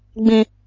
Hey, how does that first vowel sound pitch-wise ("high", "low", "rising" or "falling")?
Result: high